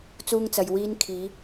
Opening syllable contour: high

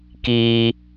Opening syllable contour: high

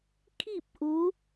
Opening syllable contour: falling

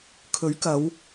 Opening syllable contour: rising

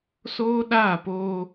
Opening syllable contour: high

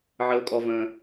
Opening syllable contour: low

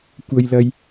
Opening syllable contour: high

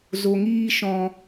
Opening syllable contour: low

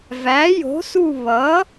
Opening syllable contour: rising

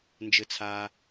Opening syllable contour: low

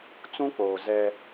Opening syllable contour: high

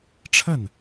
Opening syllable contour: falling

